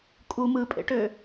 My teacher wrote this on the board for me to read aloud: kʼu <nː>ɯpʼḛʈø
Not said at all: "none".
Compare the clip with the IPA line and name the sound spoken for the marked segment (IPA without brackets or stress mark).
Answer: m